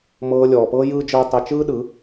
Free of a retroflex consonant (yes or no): yes